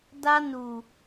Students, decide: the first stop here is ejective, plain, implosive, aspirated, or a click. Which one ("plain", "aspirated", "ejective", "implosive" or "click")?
plain